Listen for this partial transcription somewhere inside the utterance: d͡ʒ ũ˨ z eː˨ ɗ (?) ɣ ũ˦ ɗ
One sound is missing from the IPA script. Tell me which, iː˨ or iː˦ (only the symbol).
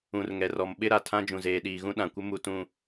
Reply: iː˨